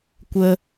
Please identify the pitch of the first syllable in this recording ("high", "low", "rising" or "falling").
high